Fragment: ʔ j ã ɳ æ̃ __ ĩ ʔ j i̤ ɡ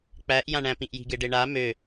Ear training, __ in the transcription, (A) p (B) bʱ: A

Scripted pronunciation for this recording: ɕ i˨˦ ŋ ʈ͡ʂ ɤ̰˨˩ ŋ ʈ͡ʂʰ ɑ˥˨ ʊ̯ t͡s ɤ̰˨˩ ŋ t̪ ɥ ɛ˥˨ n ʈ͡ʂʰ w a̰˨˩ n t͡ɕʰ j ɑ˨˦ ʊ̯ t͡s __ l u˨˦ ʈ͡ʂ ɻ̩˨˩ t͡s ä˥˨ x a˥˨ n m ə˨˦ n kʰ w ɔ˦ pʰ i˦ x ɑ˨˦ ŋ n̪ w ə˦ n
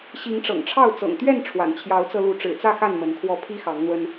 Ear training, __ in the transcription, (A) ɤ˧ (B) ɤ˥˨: A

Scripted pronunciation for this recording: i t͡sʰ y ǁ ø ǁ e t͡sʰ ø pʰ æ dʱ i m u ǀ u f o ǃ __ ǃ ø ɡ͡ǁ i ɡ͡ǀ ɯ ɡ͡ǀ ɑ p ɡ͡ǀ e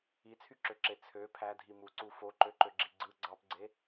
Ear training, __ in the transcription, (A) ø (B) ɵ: A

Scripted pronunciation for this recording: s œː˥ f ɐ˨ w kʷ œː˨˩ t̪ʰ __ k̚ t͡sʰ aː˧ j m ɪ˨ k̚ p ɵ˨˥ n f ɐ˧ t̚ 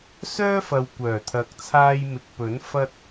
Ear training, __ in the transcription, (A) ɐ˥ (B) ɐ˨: B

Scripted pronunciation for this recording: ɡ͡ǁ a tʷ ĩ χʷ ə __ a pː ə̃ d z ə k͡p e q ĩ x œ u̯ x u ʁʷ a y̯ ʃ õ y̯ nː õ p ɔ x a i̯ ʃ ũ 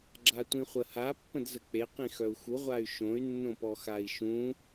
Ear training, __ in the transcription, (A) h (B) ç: A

